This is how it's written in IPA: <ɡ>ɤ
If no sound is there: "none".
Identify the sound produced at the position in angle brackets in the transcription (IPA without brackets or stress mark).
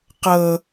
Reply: q